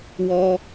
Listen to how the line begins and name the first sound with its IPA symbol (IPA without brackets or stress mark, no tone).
w